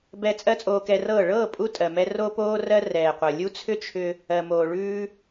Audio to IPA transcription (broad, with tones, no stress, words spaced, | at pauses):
bɛ˧ t͡sʼɜ˦t͡sʼoː˧kɛ˧rɤː˦˨ ɭɤː˦˨ pʼu˦ tʼɜ˨mɛ˧ ro˦poː˦rɜ˦ rɛː˨qʷɤ˨ lʲu˦t͡sʰʏ˦ t͡ʃʰʏ˧ | ɜ˨moː˨ ɭʉː˧